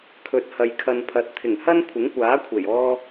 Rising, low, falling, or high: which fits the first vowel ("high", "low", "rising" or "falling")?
rising